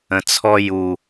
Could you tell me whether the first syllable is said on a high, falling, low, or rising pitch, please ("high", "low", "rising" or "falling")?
low